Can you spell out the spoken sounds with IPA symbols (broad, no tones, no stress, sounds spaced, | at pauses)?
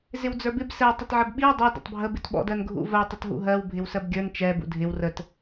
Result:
z ɪ w d͡z ə˞ b ɪ b s ɛ tˤ ɪ t ʕ ə b ɓ i w dˤ u d ə̰ tˤ bʱ ə b ɪ t ɓ ɔ̰ d ɜ n ɡʱ ṵ v ɜ tˤ ə t ɦ ṵ ɦ ɜ w bʱ ɪ w s ɜ b ɡʲ ə˞ n t͡ʃ ɛ b ṵ dʱ ɪ w r ə t